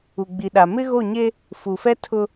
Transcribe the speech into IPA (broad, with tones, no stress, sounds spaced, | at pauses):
u˨ ɡ͡b i˨ ɗ a˨ m ɪ˦ ɣ o˦˨ ɲ e˦ | f u˨ f ɛ˦ tʰ ʊ˦